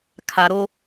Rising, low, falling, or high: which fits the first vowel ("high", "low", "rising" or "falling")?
low